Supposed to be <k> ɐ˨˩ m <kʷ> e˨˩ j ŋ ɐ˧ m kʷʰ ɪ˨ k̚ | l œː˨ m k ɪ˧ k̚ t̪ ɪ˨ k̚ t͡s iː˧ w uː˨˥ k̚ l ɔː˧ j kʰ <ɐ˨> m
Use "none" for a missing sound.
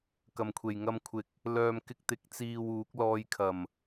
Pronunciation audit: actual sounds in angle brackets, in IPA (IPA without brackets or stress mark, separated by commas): k, kʷʰ, ɐ˨˩